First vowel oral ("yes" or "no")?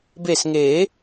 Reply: yes